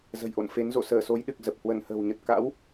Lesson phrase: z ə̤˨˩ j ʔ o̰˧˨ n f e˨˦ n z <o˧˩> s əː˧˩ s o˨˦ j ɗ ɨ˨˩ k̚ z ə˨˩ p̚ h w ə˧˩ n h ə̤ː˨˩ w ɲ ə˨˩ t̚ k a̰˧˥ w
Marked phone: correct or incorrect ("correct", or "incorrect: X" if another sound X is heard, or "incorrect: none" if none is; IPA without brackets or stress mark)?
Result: incorrect: o̰˧˨